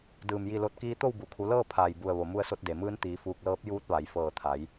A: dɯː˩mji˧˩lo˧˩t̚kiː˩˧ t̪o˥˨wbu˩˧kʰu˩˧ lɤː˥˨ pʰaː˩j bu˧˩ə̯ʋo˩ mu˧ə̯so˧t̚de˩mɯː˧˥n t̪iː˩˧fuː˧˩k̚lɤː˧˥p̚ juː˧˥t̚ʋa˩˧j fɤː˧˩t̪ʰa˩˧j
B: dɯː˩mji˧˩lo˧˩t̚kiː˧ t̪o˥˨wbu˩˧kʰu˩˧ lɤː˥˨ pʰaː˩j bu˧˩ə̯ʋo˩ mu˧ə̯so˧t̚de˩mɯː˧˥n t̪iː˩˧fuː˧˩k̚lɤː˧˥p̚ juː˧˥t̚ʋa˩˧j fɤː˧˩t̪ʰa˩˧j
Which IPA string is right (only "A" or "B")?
B